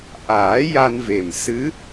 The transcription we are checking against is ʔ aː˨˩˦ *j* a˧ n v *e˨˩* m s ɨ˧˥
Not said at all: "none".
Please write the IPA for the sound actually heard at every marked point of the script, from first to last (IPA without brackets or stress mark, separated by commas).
j, e˨˩